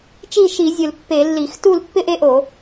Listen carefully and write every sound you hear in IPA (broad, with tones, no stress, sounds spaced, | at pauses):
t͡ʃ i˥˨ ʃ i˧˩˧ zʲ ʊ˧˩˧ l pː e˧˩˧ lː i˧˩˧ x t u˥˨ l pː ɪ˥˨ ʔ e˦ ʔ o˧˩˧